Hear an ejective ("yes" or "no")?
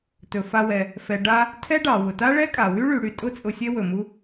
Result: yes